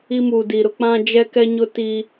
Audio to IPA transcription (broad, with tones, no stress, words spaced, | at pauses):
i˦muː˨di˨ɾʊ˦ k͡pã˦d͡ʒɛ˦kɛ˦ ɲʊ˦ti˦